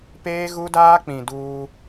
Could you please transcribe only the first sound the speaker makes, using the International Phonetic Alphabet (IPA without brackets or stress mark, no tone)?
p